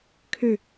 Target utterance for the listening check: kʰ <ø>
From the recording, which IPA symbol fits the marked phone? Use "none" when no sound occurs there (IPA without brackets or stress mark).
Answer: ø